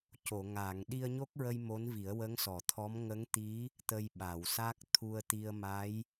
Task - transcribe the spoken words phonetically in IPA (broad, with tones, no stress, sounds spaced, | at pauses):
c o˨˩˨ ŋ aː˨˩˨ ŋ ɗ i˧ ə̯ ɲ o˦˥ k̚ ɹ ə˧ j m o˧˥ n v i˨˩˦ ə̯ w ə˧˥ ŋ s ɔ˨˩˨ t̪ʰ ɔ˧˥ m ŋ ə˧˥ ŋ t̪ i˧˥ | t̪ ə˧ j ɓ a˨˩˨ w s a˦˥ k̚ t̪ʰ u˧ ə̯ t̪ i˧ ə̯ m a˧˥ j